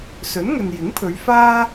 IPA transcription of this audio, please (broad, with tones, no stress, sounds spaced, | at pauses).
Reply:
s ɵ˨˥ n ŋ ɵ˨ n j ɪ˨˥ ŋ pʰ ɵ˨˧ ɥ f aː˥